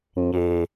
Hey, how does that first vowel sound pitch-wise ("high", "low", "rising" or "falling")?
low